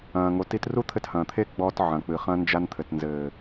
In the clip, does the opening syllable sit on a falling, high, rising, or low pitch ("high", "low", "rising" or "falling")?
low